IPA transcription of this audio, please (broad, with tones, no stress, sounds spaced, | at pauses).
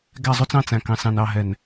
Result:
ɡ æ˦˨ zˤ u˦ t͡s ɑ̃˦ t͡s æ̃˨ k ɑ̃˨ s ɑ̃˨ n ɑ˦˨ ɦ ɛ˨ n